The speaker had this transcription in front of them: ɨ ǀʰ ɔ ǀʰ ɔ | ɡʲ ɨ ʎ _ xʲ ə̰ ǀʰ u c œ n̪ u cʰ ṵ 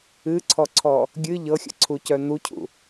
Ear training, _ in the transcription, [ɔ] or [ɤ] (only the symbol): ɤ